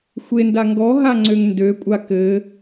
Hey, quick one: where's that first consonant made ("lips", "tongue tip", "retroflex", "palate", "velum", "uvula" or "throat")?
velum